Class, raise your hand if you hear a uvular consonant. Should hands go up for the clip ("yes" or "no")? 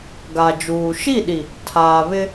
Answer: no